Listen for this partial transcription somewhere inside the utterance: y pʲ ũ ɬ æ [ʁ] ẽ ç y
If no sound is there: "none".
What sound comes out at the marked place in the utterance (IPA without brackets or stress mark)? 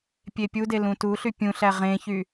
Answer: ʁ